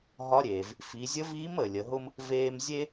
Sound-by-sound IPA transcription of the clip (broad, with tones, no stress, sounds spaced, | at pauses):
ɦ ɒ˧˥ ɾʲ eː˩ v | f i˩˧ zʲ ə˧˥ v iː˧˥ m əː˩ lʲ ə˩˧ ɦ ʊ˥ m | v eː˧ m zʲ e˥